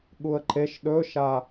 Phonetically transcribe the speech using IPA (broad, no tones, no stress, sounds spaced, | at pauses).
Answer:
ɠ u ə̯ ǃ e ʃ ɗ ɵ ʃ a